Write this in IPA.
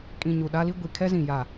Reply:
kʼĩ˨ ɲu˨ɗa˦li˦ ɡʷi˨ kʰɛ˦zĩ˨jaː˨

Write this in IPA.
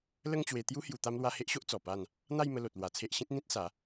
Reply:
lə˥˧ŋt͡ɕwe˧ t̪ju˦ hju˧t̪a˦mlwa˦ he˦ʔɕo˦ʔ t͡sɔ˨˩pa˥˧n | n̪a˥˧jmə˧ lo˨t̚lwa˧t͡sʰe˦ʔ ɕĩ˦t̚ n̪ĩ˦t̚sa˨˦

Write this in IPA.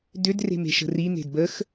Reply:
dʏd re̤me̤ʃə̤ri n̪e̤dbəx

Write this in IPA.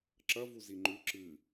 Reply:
ǁɐvu ziŋ͡ǃʉ ǁɨ

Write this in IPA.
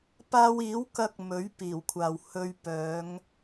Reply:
paː˥w iː˨˥wkɐ˧k̚ mɵ˨˥ɥ piː˨˩wkʷʰaː˨w hɵ˧ɥ pœː˨˧ŋ

